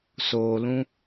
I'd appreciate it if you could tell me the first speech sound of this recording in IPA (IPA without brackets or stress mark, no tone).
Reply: s